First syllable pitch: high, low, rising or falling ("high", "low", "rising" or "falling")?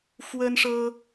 high